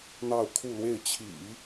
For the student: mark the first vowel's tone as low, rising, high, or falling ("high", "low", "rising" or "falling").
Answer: falling